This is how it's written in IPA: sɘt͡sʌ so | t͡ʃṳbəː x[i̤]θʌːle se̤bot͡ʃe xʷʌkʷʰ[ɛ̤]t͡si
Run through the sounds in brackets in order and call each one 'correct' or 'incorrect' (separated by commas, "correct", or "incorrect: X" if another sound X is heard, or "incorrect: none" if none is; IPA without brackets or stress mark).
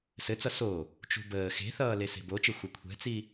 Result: incorrect: e̤, correct